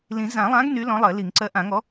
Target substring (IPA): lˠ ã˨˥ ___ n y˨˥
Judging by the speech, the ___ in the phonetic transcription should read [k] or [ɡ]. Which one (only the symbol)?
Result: ɡ